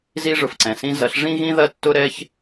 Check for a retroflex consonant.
present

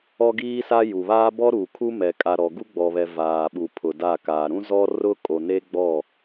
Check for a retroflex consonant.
absent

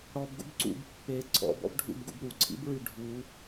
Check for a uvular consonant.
absent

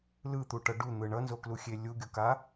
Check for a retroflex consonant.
present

